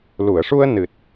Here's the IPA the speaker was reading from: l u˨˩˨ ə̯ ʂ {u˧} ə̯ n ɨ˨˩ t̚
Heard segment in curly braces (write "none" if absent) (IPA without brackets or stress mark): u˧